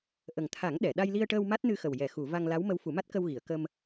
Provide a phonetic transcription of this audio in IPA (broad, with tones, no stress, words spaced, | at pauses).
ʔə˨˩ŋt̪ʰa˨˩˦ŋ ɗɛ˨˩˨ ɗa˧jli˧ə̯ʈəː˧w ma˦˥t̚nɨ˧xə˨˩w jɛ˨˩˨xu˨˩˨ va˧ŋla˧˥w mə˧˥wfu˨˩˦ma˦˥t̚ kə˧w ɣi˨˩˨ə̯kə˧m